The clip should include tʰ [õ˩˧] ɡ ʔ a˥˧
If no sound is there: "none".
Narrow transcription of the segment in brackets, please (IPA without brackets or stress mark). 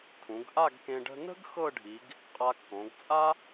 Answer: ũ˩˧